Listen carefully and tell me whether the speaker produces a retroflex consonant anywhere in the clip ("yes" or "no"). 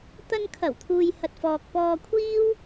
no